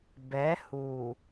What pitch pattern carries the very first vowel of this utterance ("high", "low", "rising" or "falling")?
rising